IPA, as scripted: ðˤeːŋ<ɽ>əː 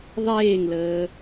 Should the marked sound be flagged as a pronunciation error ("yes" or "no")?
yes